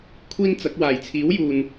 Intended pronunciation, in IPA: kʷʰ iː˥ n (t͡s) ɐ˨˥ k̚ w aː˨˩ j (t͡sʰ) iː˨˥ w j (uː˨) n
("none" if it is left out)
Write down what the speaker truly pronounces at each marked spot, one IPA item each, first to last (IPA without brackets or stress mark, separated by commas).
t͡s, t͡sʰ, uː˨